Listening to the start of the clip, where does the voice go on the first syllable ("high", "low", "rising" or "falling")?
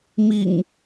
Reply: low